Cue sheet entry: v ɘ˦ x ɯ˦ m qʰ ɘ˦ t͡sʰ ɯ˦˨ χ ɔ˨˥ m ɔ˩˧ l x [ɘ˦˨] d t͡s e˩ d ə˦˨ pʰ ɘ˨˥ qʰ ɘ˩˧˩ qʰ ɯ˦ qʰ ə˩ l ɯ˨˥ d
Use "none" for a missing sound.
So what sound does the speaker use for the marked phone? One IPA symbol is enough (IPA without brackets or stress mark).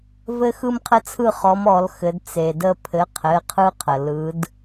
ɘ˩˧